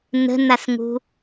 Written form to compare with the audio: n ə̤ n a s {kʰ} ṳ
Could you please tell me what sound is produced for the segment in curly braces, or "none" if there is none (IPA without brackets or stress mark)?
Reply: ŋ